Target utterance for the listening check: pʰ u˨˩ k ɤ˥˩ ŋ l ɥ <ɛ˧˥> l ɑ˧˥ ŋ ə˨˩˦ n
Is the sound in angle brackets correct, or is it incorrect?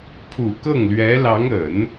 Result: correct